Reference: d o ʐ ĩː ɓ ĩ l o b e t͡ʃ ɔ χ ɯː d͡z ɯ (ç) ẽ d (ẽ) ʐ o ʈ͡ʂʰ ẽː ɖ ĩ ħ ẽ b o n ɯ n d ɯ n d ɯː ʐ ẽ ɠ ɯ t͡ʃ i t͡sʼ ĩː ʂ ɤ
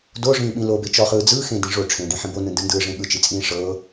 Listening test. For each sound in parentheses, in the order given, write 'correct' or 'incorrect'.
incorrect: x, incorrect: ĩ

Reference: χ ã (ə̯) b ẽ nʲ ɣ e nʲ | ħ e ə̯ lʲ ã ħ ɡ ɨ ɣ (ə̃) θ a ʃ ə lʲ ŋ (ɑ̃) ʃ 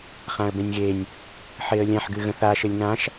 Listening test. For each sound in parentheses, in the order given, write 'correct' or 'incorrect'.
correct, correct, incorrect: ã

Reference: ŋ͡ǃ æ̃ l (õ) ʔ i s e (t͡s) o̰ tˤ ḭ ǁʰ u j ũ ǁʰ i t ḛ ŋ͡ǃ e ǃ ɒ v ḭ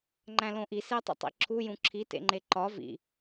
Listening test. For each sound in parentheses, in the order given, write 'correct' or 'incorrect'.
correct, incorrect: tˤ

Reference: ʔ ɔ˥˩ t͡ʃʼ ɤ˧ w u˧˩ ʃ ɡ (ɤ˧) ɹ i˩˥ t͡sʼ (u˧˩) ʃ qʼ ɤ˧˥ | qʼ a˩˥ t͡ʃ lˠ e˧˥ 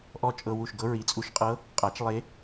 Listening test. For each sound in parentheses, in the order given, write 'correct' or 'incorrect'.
incorrect: ɤ˧˥, correct

